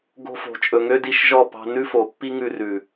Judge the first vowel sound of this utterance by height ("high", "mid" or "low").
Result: mid